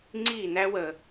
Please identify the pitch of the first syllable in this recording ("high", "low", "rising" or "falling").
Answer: falling